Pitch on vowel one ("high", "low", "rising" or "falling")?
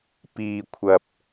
low